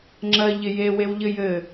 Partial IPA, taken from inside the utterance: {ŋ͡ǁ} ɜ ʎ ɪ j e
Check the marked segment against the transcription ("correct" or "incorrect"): correct